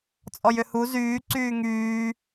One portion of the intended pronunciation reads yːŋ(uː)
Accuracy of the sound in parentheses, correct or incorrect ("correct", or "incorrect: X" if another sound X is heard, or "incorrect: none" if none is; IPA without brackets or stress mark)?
incorrect: yː